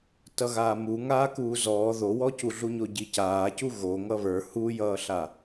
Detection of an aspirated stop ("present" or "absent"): absent